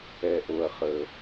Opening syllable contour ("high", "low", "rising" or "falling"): low